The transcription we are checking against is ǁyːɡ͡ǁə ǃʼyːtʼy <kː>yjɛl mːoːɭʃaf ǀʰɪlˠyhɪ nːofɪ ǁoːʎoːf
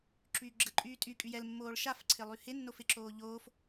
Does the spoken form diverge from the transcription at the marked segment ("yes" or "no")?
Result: yes